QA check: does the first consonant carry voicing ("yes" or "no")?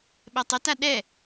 yes